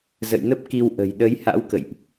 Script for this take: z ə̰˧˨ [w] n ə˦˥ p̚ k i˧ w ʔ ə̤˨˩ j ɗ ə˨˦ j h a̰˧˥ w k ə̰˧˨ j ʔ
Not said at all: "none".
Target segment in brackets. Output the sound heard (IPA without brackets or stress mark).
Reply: j